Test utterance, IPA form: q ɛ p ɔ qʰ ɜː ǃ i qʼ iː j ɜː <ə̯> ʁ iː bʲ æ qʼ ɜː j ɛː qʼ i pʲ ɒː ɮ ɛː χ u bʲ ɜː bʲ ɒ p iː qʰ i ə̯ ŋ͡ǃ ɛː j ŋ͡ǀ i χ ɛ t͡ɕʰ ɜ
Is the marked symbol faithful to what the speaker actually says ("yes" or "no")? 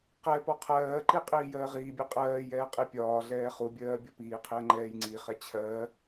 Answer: no